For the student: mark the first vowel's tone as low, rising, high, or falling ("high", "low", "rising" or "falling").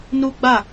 high